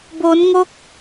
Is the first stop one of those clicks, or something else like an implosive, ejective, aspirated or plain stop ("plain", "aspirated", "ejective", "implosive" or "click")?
plain